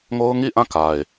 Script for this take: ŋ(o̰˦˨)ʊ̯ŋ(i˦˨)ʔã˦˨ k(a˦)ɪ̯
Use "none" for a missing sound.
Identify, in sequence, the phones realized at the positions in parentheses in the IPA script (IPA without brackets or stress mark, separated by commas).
o˦, i˦˨, a˨